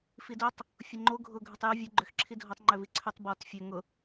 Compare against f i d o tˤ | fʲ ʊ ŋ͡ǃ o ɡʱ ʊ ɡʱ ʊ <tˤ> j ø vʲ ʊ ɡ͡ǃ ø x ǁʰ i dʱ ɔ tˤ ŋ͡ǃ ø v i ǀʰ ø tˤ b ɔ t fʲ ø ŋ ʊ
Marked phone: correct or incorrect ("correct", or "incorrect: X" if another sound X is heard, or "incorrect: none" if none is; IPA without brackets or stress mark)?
correct